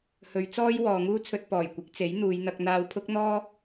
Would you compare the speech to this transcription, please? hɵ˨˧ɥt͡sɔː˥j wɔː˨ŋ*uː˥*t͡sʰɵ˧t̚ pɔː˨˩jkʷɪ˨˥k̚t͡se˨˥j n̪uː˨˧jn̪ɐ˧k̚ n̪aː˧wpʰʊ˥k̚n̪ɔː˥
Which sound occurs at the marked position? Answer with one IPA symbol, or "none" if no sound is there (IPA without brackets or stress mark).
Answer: uː˥